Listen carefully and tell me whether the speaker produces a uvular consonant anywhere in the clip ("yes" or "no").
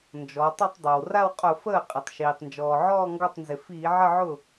yes